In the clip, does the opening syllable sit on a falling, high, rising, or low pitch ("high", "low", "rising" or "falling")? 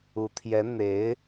rising